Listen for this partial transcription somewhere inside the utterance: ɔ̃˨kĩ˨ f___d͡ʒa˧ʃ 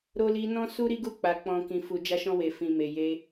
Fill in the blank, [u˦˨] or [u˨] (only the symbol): u˨